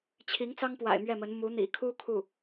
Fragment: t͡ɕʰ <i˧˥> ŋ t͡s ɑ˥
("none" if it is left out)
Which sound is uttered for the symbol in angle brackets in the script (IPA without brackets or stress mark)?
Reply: i˧˥